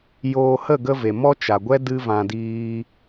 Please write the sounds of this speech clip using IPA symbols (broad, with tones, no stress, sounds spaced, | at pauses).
j oː˧ h ə˦˨ ɡ ə˧ v e˨ m ɔ˦ t͡ʃ a˨ ɡʷ ɛ˦ d ɨ˦ v ã˧ d iː˦